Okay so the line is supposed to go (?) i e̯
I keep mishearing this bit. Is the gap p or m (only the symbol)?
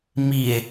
m